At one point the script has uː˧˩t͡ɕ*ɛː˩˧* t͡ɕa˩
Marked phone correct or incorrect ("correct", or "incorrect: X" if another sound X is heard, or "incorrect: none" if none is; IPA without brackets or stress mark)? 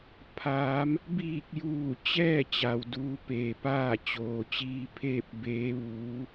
incorrect: ɛː˥˨